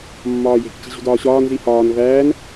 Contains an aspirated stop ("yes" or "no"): no